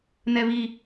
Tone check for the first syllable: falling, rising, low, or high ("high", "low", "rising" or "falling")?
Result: high